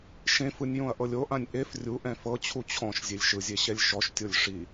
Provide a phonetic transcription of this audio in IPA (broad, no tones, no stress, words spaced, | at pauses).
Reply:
ʃẽfɯnʲ jõɐ̯ʔɤlʲoʔãnʲ ʔef rʲuʔɛ̃ fɤt͡ɕʰu t͡ɕʰɔ̃ʃ zʲelʲʃɯzʲe ɕɛlʲʃɔʃtʲolʲ ʂi